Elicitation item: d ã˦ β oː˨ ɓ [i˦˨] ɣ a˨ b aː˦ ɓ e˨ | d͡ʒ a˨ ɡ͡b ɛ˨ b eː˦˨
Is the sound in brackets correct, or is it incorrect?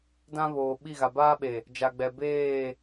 correct